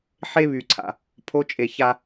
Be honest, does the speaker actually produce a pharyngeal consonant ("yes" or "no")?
yes